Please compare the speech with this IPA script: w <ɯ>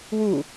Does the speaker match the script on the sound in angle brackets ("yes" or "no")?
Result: no